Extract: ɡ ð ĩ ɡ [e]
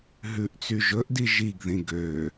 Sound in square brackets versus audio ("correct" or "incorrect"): incorrect